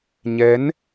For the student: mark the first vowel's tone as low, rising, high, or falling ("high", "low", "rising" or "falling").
rising